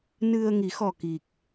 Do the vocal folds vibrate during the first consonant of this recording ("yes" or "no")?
yes